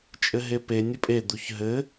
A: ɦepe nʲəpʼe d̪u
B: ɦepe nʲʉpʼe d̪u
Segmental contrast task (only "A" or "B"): A